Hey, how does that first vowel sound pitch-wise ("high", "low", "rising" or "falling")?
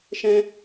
high